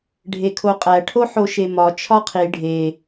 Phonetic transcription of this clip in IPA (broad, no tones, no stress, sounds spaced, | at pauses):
ɖʱ e kʰ o qʼ æ ʈʰ o ħ o ʃ e m ɒ t͡ʃʰ ɒ qʰ i ɖʱ e